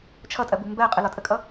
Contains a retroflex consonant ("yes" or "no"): no